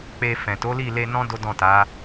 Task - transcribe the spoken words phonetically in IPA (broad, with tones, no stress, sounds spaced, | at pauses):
k͡p e˧ f ɛ̃˨ t o˨˦ l i˦˨ l e˧ n ɔ̃˦ d o˦ d ɔ̃˦˨ t a˨˦